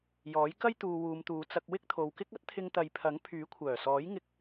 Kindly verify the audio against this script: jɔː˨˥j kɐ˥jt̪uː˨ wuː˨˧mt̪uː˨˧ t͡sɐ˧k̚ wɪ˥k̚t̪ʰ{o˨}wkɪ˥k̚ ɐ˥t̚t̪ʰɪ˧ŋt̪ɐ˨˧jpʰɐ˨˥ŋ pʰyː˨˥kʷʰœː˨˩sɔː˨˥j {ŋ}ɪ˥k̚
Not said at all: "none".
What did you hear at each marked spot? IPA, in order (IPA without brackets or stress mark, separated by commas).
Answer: o˨, ŋ